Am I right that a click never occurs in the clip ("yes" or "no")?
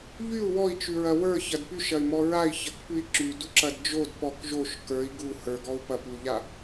no